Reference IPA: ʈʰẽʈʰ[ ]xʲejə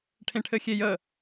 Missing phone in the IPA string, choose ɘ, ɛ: ɘ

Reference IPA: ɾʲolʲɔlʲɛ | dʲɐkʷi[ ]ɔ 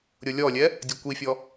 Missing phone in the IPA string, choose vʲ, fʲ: fʲ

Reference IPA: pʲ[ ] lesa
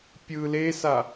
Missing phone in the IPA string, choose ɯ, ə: ɯ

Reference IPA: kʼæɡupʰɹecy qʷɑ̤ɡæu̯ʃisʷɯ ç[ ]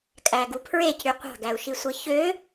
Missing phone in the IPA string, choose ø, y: ø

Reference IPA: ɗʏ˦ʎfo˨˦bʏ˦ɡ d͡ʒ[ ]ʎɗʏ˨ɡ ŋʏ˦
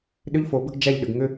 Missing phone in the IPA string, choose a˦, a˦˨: a˦˨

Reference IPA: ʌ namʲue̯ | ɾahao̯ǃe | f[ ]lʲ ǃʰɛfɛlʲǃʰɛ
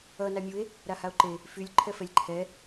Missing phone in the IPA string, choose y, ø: y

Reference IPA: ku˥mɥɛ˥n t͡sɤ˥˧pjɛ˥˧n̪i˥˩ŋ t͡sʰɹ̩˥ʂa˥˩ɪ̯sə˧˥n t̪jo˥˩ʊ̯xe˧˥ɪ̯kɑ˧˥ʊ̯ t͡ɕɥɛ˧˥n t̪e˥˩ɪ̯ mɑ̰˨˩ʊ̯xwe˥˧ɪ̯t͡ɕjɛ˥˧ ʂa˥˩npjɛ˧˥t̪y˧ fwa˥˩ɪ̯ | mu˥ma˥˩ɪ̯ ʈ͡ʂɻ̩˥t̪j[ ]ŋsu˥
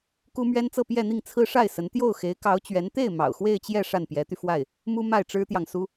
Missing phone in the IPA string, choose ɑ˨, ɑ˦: ɑ˨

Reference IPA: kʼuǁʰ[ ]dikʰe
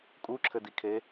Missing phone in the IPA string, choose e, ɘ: ɘ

